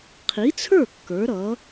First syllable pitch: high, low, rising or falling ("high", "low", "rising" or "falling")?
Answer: rising